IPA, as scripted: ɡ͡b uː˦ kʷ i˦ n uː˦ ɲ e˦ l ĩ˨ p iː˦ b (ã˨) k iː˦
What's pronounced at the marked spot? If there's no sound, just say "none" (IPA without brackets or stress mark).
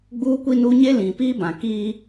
ã˨